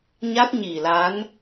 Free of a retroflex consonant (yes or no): yes